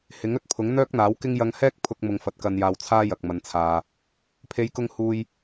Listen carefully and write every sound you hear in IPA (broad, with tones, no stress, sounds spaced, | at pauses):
h ɪ˨˥ ŋ ɵ˨ t̚ pʰ ʊ˨˥ ŋ n̪ œː˥ k̚ n̪ aː˨˥ w k ɪ˥ ŋ j ɐ˧ ŋ h ɛː˥ k̚ pʰ ʊ˧ k̚ m ʊ˨ ŋ f ɐ˨˥ t̚ k ɐ˧ n j aː˧ w t͡sʰ aː˥ j ɐ˨ k̚ m ɐ˨ n t͡sʰ aː˨ | pʰ e˨˧ j k ʊ˧ ŋ h uː˧ j